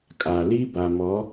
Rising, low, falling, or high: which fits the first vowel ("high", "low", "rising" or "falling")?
low